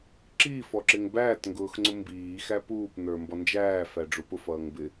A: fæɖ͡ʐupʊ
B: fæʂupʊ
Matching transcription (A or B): A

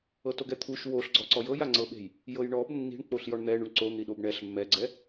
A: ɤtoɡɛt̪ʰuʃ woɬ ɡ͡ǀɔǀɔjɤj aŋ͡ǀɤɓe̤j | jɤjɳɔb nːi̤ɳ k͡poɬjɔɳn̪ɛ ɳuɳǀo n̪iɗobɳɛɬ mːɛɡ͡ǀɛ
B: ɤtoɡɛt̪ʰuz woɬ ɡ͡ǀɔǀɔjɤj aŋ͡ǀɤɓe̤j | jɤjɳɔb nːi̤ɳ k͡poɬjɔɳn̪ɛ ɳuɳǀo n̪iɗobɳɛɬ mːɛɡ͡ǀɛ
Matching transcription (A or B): A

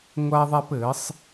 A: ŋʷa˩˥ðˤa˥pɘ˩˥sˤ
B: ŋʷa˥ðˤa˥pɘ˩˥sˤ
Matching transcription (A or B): B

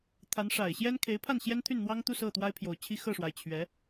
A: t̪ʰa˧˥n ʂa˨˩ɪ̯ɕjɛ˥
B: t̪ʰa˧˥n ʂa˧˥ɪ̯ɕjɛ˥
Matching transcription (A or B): A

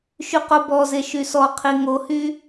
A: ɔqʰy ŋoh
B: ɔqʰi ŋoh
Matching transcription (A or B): B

